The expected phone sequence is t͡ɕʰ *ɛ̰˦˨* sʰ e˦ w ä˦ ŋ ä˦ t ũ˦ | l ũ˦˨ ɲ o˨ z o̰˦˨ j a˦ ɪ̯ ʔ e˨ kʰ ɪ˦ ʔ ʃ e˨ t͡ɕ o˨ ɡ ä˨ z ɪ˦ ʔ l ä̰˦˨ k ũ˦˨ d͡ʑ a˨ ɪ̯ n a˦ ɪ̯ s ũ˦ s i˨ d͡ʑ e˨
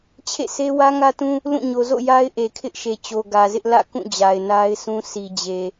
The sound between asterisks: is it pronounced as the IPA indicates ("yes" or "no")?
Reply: no